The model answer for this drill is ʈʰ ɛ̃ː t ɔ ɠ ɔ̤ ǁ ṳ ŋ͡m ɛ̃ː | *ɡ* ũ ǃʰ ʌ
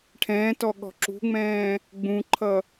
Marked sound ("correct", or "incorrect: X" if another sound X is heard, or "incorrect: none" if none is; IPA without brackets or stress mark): incorrect: ɡ͡b